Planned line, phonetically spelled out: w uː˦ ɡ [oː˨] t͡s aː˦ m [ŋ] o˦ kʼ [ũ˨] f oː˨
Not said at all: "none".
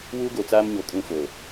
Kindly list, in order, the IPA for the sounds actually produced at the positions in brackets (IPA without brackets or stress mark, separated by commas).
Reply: o˨, ɲ, ũ˦